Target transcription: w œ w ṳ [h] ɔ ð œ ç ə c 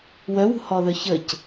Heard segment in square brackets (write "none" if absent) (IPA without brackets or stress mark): h